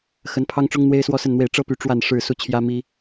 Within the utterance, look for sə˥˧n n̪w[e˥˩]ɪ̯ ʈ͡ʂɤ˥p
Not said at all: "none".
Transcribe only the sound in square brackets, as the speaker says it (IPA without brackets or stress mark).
e˥˩